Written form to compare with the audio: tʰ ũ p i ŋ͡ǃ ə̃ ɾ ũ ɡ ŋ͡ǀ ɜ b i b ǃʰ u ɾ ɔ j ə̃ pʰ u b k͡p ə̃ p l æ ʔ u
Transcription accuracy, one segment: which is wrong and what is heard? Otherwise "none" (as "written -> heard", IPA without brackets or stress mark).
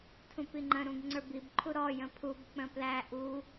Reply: ɜ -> ə˞